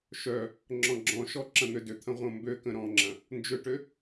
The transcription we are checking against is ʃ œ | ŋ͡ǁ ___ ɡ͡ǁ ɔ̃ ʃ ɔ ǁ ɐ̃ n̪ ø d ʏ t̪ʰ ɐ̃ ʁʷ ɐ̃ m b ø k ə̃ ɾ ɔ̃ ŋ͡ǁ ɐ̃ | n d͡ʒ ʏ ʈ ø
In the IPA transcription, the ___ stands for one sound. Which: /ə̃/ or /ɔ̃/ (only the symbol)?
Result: ɔ̃